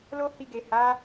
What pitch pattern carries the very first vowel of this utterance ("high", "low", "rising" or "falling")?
high